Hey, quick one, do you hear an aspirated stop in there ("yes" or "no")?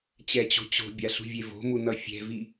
no